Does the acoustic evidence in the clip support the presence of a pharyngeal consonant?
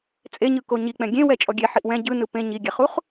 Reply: yes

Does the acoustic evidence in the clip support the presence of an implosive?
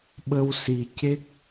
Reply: yes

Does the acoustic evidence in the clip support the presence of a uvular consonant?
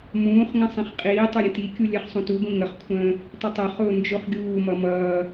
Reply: yes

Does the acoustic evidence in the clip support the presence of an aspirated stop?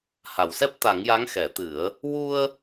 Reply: no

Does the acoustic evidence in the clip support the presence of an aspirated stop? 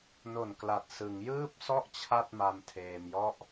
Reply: yes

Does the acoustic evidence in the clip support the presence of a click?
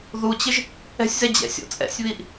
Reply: no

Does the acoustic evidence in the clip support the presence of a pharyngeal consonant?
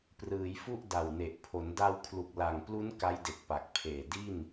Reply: no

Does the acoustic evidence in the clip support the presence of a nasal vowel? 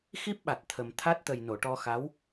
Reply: no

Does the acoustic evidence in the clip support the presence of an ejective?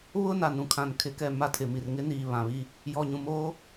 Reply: no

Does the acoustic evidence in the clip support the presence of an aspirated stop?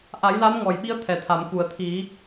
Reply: yes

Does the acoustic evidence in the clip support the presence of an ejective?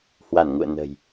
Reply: no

